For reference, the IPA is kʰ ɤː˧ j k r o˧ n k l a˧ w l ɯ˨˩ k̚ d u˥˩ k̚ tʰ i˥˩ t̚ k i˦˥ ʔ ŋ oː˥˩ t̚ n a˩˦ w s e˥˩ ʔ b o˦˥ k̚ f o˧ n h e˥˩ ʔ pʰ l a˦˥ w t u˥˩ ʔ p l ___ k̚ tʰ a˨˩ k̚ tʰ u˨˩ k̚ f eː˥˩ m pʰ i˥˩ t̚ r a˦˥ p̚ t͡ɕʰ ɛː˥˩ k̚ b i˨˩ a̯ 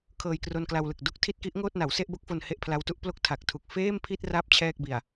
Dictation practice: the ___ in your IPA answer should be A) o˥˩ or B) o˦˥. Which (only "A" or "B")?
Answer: A